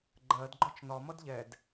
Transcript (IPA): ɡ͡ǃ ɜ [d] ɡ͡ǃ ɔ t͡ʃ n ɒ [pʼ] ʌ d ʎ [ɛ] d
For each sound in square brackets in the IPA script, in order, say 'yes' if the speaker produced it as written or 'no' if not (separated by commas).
yes, no, yes